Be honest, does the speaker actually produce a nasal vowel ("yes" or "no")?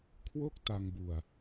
no